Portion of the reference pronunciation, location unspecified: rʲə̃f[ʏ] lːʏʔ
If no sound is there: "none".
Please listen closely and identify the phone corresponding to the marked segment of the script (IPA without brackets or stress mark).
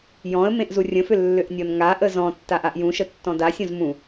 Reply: ʏ